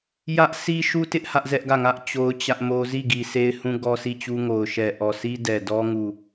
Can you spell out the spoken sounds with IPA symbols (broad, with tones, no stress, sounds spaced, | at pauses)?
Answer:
j ä˦ ʔ s i˦ ʃ u˦ t ɪ˦ ʔ h ä˦ ʔ z ɛ˦ ʔ ɡ ä˦˨ ŋ ä˦ ʔ t͡ɕ o˦ ʊ̯ t͡ɕ ä˦ ʔ m o˦ z i˦˨ ɡ i˨ sʰ e˦ ɪ̯ h ũ˦ ɡ ɔ˦ sʰ i˦˨ t͡ɕ u˦ ŋ o˨ ʊ̯ ʃ ɛ˨ ʔ ɔ˨ sʰ i˦ d ɛ˨ d ɔ˦ ŋ u˦˨